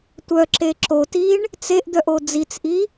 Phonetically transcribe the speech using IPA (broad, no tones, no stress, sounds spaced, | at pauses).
tʷ œ ǁ e ǁ o t i ɳ | t͡s e ʔ d̪ œ ʔ o d͡z i t͡s ʔ i